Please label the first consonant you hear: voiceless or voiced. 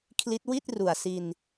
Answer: voiceless